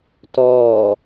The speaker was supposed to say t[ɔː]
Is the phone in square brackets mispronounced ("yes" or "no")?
no